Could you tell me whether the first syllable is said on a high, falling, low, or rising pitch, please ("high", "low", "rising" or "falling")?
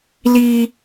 low